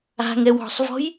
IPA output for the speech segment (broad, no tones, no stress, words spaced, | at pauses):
a̤ŋɛw ɔ̤sˤvɔ̤j